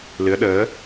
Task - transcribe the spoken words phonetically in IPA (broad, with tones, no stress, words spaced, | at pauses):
lɨ˨˦ə̯ɗəː˨˦